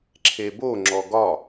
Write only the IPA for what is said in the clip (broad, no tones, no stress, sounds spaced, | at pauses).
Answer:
ǁʰ e b o ŋ͡ǁ ɔ ɡ ɒ